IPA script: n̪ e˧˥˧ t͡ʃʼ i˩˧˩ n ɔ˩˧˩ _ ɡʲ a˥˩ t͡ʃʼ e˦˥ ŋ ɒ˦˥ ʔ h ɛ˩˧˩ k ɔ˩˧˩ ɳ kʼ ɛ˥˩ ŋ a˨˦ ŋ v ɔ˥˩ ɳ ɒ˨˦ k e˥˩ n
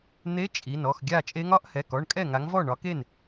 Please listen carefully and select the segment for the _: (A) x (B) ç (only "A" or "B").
A